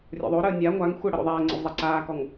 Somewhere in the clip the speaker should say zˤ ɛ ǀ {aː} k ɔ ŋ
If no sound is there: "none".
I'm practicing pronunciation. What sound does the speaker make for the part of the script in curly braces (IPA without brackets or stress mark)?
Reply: aː